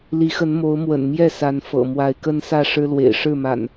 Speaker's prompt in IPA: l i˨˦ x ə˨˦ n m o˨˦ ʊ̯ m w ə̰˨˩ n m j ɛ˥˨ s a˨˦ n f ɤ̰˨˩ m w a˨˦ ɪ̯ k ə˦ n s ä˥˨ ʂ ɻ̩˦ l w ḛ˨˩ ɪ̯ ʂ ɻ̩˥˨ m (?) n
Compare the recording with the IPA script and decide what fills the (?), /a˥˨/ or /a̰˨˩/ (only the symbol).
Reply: a̰˨˩